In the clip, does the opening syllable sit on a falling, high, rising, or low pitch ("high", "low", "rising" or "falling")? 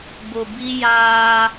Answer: low